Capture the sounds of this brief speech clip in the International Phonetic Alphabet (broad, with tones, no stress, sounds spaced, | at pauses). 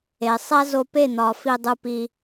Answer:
e˨ sˤ æ˦ z o˧ p e˦˨ n̪ ɒ˨ f i˧ dˤ u˧ p i˧